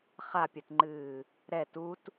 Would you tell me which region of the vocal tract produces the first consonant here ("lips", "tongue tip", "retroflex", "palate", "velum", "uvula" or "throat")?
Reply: uvula